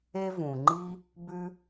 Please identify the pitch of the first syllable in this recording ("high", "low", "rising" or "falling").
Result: high